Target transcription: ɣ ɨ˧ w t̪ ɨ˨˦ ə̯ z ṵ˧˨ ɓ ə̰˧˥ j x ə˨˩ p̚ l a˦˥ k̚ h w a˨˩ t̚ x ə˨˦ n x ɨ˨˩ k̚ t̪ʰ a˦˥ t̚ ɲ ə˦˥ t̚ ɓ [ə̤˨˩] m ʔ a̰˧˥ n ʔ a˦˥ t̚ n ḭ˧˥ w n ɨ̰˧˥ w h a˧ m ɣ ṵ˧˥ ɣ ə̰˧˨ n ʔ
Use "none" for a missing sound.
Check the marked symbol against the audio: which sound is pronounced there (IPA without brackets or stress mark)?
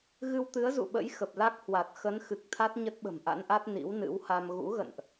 ə̤˨˩